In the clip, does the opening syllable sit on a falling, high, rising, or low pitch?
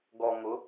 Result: low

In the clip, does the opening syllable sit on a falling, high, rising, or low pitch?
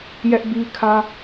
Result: high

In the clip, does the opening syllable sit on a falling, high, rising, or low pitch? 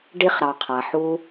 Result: high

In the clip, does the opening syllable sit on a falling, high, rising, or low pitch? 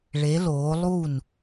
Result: rising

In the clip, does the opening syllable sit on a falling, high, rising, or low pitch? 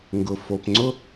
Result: low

